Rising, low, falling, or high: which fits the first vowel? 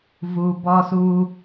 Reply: low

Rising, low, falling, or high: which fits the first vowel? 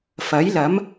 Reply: rising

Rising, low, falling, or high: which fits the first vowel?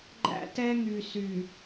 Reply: high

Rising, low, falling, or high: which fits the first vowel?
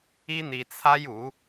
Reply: high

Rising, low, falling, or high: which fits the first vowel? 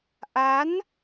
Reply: rising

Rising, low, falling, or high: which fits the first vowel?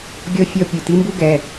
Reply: high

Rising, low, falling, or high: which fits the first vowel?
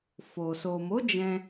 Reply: low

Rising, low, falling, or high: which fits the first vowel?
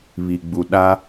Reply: low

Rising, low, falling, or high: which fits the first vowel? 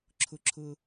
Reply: high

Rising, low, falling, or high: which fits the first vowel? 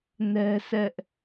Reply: high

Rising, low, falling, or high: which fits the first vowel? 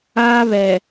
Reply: high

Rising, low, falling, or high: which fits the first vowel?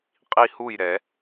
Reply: falling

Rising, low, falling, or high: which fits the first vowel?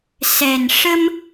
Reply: low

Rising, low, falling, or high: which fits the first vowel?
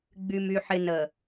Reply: low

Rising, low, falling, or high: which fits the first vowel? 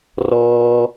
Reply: high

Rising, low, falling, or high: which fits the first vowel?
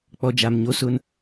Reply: low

